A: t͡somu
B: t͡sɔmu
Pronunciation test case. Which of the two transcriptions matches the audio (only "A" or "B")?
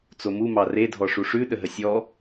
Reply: A